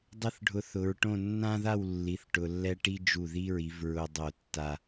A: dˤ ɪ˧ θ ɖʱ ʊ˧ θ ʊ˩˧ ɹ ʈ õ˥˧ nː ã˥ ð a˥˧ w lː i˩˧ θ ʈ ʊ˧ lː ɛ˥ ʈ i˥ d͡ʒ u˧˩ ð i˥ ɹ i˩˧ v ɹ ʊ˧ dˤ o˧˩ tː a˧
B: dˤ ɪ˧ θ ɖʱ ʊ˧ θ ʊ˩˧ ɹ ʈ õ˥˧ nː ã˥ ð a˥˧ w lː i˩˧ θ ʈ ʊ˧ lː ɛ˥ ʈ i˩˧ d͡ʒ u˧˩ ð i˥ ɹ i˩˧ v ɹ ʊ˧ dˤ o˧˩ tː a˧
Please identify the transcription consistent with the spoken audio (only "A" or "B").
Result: A